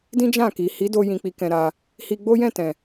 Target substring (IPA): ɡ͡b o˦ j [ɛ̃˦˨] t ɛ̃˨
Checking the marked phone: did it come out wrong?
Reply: no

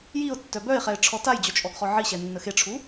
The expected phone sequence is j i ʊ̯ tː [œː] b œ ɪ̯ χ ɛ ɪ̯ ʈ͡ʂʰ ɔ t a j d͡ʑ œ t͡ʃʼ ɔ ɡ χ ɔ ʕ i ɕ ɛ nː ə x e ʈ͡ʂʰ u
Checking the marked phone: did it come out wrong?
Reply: yes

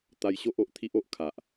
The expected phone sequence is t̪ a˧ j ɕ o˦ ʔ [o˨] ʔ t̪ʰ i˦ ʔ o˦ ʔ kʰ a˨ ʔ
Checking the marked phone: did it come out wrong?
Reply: no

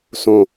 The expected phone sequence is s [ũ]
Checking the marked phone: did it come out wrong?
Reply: yes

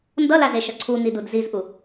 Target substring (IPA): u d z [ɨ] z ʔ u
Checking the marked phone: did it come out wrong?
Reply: yes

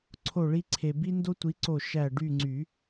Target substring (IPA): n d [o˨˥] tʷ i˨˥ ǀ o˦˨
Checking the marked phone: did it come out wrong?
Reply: yes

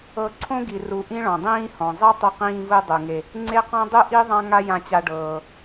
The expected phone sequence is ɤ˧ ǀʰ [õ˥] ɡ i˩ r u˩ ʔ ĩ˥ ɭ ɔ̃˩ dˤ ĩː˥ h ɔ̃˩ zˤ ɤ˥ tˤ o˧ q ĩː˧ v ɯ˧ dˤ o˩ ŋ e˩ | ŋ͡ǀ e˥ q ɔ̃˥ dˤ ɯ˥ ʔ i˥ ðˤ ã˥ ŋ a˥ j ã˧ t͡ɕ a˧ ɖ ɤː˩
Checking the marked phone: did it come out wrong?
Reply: no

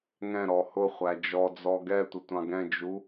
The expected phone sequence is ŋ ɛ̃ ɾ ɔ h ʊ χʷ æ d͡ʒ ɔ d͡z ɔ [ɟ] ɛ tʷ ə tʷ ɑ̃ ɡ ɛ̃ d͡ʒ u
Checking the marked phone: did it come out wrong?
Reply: yes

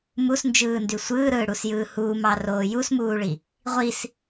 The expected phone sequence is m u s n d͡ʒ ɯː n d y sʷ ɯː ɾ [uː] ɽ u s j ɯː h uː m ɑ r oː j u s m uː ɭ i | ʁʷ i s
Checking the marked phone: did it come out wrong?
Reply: yes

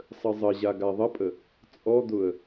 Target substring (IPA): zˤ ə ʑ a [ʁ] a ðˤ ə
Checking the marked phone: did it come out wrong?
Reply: yes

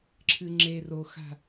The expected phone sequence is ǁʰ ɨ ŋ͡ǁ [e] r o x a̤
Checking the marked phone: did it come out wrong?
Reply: no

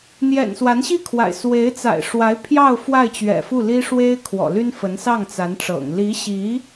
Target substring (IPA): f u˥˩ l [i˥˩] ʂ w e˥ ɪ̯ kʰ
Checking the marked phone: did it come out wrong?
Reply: yes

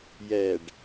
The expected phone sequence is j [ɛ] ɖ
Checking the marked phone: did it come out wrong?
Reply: no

